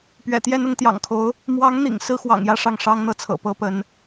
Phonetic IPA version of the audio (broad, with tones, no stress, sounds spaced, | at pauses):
p ɥ ɛ̰˨˩ t̪ j ɛ˥˧ n ʊ˥˩ ŋ t̪ j ɑ̰˨˩ ŋ kʰ o˧˥ ʊ̯ | m w ɑ˧˥ ŋ n̪ ḭ˨˩ ŋ s ɹ̩˥ x w ɑ̰˨˩ ŋ j ä˥˧ ʂ ɑ˥˩ ŋ ʂ ɑ˥ ŋ n̪ ɤ˥˩ t͡sʰ ɤ̰˨˩ p ɤ˥ p ə˧˥ n